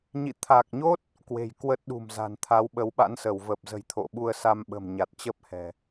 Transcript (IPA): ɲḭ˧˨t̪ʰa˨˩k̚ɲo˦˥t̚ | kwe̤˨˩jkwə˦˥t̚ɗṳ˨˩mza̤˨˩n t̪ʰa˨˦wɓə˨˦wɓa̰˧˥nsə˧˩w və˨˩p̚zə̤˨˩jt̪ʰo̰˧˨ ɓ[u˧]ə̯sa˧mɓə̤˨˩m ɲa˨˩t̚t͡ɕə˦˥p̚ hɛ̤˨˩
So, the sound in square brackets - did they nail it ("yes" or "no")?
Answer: yes